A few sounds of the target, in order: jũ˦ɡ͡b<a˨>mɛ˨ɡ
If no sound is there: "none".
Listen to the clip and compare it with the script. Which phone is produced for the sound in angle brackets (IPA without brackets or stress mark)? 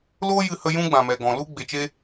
ã˨